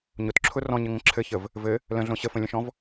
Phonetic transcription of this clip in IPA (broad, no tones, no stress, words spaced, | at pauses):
ɲʊtǁʰʊ rɔ̃ɲɘŋə̃ ǁʰɘçəv | vɘ | lə̃ɮõ ɕəfə̃lʲə̃ʃɔ̃v